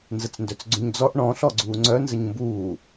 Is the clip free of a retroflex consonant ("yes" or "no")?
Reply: no